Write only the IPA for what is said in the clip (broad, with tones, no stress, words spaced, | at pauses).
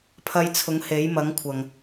pʰɐ˧jt͡sʰʊ˨˥ŋ he˨˥jmɐ˨˥ŋkʷʰɐ˨ŋ